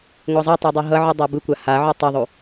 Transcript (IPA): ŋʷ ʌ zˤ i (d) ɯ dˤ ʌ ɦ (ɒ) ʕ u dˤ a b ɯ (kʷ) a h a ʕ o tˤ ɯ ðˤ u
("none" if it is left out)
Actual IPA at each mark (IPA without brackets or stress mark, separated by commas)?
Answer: tˤ, ʌ, kʷ